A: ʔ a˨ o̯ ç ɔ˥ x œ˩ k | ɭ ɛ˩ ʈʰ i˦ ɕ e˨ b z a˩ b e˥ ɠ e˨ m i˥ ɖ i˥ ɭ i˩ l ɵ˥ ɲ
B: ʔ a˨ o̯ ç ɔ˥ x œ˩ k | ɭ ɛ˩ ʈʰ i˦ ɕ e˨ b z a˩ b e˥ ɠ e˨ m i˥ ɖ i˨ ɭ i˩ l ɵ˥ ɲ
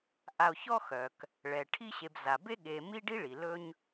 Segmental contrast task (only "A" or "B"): A